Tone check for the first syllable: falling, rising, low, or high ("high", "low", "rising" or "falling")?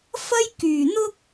high